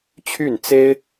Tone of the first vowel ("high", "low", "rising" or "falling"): falling